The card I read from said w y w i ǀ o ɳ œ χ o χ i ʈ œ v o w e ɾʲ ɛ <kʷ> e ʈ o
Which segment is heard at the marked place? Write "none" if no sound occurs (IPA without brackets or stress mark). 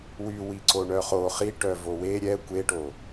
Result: kʷ